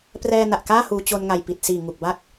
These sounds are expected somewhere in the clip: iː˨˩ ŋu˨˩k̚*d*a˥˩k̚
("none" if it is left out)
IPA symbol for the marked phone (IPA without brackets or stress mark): b